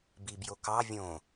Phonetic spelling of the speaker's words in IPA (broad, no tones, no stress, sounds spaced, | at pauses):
b i b j o k ɑ vʲ õ